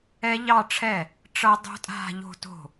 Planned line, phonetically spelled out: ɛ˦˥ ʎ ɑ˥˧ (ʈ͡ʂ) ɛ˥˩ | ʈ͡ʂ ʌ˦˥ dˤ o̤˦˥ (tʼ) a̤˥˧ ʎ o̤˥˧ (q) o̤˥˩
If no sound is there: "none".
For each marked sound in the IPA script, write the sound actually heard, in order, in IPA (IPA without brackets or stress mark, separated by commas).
ʈ͡ʂʰ, tʼ, t